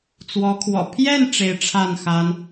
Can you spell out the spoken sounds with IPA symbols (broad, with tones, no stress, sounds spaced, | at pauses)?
t͡s w ɔ˧˥ kʰ w ɔ̰˨˩ pʰ j ɛ˥˩ n ʈ͡ʂ e˧˥ ɪ̯ ʈ͡ʂʰ a˥˩ n x a˥ n